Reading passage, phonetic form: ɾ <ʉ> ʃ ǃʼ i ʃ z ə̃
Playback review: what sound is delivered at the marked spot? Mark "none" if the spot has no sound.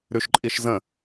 ʉ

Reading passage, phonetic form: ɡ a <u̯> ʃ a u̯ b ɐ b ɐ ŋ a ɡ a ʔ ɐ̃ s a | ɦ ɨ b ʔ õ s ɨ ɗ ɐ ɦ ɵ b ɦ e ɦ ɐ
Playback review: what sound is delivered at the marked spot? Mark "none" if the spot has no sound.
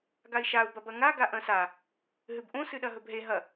i̯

